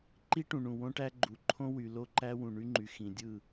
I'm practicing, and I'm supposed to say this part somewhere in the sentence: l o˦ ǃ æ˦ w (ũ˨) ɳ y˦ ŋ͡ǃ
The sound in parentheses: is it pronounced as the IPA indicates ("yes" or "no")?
yes